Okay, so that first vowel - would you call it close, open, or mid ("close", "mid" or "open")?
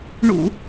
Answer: close